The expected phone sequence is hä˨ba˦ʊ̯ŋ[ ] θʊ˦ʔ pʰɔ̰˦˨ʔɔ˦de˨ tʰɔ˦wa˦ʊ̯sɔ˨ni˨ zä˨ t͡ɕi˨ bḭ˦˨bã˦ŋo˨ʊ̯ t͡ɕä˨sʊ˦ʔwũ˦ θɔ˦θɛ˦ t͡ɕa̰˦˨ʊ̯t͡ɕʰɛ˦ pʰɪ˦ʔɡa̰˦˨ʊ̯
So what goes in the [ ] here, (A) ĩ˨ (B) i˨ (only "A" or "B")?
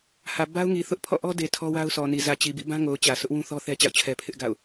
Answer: B